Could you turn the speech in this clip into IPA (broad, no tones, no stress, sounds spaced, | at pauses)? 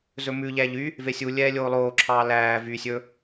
z ɵ m ʉ ʎ æ ʎ y | v e sʲ u lʲ ɛː lʲ oː lˠ oː ǁʰ ɑː l æː v y sʲ ɵ